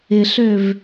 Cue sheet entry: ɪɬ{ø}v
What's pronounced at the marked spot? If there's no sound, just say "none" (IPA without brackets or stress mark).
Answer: ø